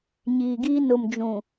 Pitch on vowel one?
low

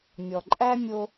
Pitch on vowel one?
low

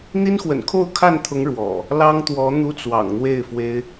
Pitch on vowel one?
high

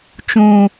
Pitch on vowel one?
low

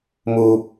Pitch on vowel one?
low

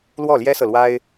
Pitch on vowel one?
falling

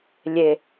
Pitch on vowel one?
low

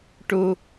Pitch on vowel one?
high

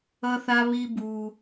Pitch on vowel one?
high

